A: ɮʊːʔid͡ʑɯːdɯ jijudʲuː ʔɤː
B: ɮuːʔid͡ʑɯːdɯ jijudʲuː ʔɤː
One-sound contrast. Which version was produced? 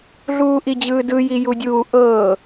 B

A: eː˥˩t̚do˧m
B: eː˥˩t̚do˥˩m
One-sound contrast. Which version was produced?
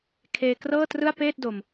A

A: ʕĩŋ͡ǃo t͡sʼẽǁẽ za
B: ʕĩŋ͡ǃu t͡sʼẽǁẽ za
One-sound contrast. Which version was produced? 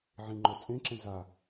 A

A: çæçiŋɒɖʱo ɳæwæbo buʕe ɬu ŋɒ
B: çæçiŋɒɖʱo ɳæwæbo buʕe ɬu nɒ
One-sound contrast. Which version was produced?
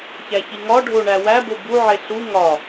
A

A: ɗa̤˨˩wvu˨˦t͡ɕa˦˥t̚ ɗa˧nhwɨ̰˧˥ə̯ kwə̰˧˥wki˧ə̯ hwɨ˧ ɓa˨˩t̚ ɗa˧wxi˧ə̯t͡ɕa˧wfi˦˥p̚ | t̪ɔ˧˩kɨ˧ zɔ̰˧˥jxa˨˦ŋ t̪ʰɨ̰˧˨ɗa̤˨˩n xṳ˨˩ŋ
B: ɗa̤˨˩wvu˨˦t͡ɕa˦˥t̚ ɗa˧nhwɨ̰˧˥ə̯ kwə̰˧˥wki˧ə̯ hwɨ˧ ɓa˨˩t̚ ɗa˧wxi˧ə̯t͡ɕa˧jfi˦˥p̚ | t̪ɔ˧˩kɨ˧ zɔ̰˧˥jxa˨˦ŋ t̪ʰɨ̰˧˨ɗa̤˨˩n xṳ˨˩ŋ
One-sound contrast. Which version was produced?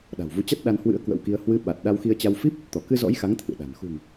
A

